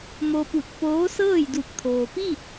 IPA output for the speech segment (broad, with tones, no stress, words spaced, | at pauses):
mo˧pu˧˩t̚ poː˧˥sɤː˥˨jdu˧˩k̚ t̪ʰoː˩piː˥˨t̚